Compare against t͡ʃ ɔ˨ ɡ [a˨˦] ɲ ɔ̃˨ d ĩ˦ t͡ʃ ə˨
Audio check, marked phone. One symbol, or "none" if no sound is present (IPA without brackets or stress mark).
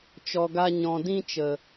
a˧